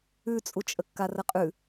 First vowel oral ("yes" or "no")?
yes